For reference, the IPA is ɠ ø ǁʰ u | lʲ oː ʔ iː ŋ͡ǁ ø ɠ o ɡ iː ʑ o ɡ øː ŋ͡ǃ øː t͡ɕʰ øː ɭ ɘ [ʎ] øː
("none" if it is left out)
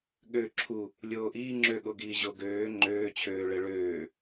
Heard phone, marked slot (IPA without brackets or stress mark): ɭ